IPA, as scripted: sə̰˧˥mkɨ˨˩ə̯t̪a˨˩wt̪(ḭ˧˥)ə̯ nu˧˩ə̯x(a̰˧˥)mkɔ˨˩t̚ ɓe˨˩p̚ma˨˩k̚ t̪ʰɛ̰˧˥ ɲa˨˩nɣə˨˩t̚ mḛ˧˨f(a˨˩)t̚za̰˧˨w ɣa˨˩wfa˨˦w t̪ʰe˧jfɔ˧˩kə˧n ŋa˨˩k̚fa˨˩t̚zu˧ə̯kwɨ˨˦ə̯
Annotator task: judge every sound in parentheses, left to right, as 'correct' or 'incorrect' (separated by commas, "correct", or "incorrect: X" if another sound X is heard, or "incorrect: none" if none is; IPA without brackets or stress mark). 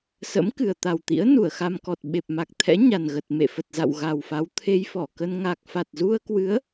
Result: correct, incorrect: a˧, incorrect: ə˨˩